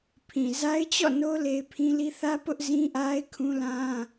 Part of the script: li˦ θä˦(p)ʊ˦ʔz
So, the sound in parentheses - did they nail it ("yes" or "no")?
yes